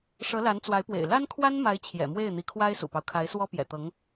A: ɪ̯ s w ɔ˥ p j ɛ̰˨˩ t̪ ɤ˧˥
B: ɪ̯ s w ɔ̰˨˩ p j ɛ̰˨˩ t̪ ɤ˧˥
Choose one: A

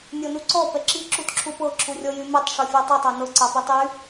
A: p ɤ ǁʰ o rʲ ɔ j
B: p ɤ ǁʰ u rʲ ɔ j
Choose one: B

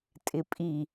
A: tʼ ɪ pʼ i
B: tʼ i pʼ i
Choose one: A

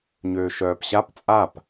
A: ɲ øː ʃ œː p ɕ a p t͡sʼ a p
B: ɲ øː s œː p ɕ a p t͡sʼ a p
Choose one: A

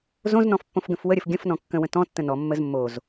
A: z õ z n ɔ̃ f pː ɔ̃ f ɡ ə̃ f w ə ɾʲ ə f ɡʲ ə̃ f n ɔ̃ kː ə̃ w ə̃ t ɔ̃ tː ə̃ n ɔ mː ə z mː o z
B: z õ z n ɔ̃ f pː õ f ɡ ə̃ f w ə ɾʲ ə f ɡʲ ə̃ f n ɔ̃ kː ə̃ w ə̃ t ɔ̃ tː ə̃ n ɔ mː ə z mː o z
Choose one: B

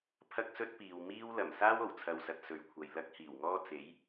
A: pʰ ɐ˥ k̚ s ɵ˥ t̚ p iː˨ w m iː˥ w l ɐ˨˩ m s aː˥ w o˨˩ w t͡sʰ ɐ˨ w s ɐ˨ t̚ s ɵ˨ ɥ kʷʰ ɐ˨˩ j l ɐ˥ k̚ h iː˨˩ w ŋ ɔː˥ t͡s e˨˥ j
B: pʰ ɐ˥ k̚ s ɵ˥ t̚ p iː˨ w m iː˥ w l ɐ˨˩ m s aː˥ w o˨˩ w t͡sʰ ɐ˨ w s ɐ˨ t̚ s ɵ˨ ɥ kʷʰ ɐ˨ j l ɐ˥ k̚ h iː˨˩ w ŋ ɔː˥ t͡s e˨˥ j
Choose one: B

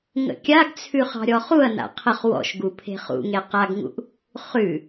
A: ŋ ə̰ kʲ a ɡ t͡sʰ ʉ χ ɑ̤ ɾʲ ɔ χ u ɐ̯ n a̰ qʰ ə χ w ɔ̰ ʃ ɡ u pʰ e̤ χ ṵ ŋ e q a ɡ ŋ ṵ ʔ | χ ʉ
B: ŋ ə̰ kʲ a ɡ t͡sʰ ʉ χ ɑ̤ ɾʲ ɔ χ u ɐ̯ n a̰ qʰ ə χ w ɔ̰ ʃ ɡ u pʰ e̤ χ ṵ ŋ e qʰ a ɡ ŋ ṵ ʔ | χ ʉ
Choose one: A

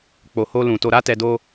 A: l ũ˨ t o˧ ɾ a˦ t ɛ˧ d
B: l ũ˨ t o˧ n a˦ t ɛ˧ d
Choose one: A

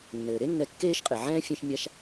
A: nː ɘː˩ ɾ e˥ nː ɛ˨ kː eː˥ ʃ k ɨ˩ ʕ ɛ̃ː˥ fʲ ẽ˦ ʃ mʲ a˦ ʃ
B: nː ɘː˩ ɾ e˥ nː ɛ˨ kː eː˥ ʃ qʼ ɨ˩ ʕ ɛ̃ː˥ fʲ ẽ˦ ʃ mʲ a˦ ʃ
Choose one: B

